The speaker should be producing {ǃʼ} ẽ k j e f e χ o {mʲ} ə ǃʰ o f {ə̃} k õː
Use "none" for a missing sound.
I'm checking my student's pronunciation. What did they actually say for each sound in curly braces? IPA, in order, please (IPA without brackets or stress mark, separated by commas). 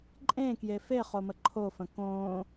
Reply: ǃʼ, m, ə̃